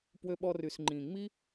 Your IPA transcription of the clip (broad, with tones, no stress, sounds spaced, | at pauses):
p w ø˧ ɓ ɔ˧ r y˨ s ŋ͡ǃ ĩː˨ ŋ͡m i˦